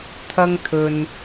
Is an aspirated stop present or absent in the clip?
present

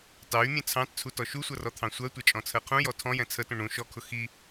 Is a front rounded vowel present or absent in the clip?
present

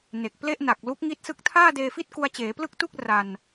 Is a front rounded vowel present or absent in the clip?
absent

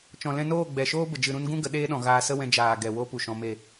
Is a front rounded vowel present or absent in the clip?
absent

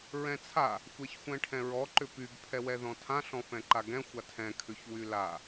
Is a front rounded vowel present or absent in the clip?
present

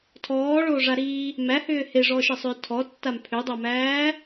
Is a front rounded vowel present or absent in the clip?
present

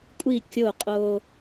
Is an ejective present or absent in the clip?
present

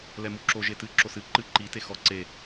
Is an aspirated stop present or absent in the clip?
absent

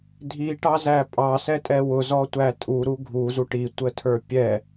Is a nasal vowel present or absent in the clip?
absent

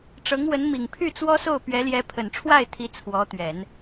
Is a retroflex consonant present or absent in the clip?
present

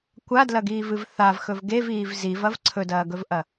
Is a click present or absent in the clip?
present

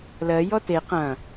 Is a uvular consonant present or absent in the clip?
present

